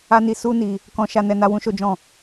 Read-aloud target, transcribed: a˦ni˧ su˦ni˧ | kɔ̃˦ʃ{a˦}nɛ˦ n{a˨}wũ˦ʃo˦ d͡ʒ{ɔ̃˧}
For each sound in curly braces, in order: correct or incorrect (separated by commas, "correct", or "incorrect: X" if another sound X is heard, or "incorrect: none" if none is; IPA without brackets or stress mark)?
correct, incorrect: a˦, incorrect: ɔ̃˦˨